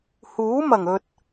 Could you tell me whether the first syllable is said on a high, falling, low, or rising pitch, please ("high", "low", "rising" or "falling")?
rising